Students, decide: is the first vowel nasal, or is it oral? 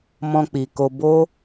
nasal